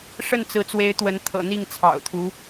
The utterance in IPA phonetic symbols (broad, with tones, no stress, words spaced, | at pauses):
ʂə˥˩nt͡sɹ̩˧˥t͡swe˧˥ɪ̯ t̪wə˧˥nt̪ʰɤ̰˨˩n̪i˥˩ŋ t͡sʰɑ̰˨˩ʊ̯t̪ʰu˧˥